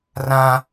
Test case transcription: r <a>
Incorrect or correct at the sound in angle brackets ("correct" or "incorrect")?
incorrect